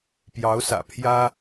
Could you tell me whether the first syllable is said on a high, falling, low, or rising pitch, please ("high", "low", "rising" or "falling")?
rising